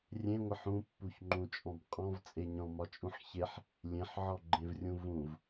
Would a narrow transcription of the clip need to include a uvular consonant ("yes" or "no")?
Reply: yes